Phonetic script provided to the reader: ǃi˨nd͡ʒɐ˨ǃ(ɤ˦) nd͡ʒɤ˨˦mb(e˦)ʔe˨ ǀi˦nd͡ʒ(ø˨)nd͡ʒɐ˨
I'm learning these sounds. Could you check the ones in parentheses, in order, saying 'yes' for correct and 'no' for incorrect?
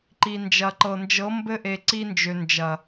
no, no, yes

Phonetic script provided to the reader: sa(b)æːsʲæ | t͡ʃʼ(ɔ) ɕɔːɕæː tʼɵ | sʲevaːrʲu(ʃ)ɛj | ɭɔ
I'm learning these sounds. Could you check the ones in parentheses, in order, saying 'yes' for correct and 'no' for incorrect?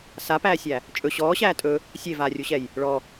no, no, no

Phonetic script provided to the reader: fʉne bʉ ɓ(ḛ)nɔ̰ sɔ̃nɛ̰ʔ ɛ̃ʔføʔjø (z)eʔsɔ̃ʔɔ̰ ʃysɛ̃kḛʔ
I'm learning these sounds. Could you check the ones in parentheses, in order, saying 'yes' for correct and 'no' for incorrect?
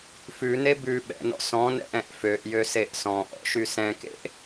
no, no

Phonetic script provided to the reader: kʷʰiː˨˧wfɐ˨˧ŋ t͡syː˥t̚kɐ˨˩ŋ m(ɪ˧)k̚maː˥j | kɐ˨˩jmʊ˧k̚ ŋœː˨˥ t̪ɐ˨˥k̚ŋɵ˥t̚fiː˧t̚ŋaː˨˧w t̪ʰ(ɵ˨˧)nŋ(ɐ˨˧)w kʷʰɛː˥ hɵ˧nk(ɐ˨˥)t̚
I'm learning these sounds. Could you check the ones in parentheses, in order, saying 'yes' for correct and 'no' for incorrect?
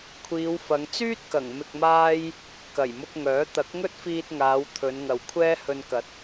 yes, yes, no, yes

